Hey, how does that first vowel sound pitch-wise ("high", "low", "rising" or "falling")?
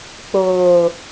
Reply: low